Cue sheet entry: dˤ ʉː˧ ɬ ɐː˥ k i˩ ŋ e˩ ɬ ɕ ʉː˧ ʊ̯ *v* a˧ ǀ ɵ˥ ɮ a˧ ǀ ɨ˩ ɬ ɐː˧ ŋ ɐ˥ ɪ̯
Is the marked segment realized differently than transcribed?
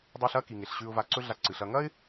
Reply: no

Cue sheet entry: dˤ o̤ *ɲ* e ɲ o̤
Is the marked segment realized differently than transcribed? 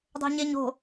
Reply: no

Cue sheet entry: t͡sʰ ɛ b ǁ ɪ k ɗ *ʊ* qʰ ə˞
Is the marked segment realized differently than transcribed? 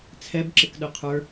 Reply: no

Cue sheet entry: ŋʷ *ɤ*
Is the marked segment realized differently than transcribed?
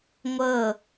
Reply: no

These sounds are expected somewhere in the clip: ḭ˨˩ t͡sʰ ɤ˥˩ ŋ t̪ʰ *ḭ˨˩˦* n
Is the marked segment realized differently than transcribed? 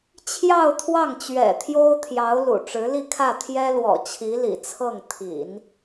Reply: no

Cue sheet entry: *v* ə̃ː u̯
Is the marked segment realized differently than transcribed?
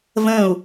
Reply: no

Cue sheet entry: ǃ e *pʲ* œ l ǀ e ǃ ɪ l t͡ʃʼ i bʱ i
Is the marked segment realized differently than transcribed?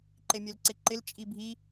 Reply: yes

